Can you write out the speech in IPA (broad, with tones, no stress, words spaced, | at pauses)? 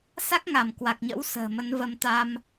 sa˦˥k̚ŋa˧˩m kwa˨˩k̚ɲə̰˧˥w sə̤ː˨˩mə˨˦nvə˧m t̪a˧m